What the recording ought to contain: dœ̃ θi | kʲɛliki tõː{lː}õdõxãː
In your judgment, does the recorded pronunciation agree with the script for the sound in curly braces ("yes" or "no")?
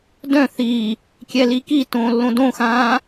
yes